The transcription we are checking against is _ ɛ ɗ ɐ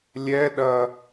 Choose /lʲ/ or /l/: lʲ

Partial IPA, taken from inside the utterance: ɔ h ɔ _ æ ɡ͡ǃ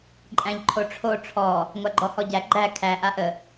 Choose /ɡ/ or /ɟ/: ɟ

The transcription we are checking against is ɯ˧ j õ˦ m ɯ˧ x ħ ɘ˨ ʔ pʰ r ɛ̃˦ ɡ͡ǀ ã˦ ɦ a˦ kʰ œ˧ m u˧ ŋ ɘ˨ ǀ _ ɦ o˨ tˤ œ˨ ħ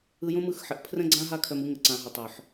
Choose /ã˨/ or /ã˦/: ã˨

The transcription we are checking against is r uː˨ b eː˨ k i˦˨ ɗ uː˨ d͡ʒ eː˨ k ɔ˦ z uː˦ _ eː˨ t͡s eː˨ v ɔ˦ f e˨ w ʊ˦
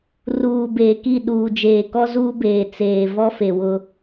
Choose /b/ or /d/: b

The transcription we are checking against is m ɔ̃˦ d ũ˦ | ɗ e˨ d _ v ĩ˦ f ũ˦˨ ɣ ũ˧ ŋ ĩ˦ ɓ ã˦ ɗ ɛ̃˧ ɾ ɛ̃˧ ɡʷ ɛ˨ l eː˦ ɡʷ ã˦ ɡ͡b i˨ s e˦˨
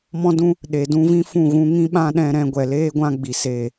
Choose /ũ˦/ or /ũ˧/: ũ˦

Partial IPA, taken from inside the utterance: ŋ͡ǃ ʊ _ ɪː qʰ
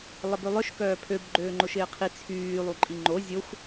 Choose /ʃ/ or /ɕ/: ʃ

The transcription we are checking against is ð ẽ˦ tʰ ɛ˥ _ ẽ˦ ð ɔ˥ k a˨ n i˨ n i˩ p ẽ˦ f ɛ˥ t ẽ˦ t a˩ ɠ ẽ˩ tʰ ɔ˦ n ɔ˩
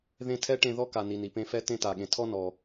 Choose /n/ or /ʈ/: ʈ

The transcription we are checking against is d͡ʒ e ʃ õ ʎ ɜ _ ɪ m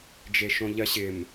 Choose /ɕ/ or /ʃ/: ɕ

